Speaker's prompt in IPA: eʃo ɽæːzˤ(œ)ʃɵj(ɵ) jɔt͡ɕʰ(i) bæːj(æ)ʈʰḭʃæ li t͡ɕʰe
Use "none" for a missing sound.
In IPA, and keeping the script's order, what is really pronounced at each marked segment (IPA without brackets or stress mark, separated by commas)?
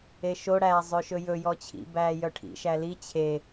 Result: ø, ɵ, ḭ, œ